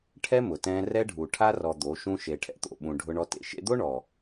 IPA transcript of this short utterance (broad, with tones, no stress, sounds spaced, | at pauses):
ʈʰ ɛ˦ m ʊ˨ t ɛ̃ː˧ r ɛ˦ ɖʱ u˨ ʈʰ a˧ r ɔ˨ d̪ o˨˦ ʃ ũ˦ ʃ e˨ ʈʰ ɛ̰˨ t̪ o̰˨ ɓ ũ˨ ɖʱ ʊ˧ ɳ ɔ˧ t ḛ˨ ʃ ḛ˧ d̪ o˦ ɳ ɔ˨